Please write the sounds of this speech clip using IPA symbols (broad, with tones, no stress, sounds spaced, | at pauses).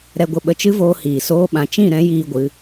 ɾ ɛ˧ ɡʷ ə˧ ɓ ə˧ t͡ʃ ɨ˦ v oː˧ h iː˨ s oː˧ ɓ ã˨ t͡ʃ ĩ˦˨ ɾ ɛ̃˨˦ j iː˧ ɡʷ ɨ˨˦